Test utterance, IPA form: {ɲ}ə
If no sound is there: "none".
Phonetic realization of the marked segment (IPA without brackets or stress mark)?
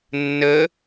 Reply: nː